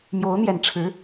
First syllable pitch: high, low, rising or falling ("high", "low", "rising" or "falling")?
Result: rising